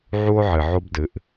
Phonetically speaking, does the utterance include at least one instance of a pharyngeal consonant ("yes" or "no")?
yes